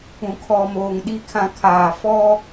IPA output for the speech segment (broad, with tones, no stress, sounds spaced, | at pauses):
ũ˨ kʰ ɔ˨ m oː˨ ŋ ɗ i˨ kʰ ã˨ kʰ aː˨ f ɔ˦